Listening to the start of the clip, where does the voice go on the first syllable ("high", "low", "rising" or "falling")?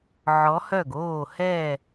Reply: rising